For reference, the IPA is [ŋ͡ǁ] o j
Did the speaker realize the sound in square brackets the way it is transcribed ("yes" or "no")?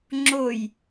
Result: yes